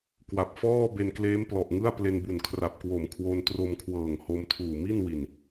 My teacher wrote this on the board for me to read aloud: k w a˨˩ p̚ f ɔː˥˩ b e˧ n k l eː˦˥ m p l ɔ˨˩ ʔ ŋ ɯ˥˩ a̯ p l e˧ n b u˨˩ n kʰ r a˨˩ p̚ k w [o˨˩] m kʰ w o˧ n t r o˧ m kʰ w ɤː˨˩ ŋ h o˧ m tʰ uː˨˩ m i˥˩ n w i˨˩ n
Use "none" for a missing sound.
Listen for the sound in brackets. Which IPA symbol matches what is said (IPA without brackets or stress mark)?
o˨˩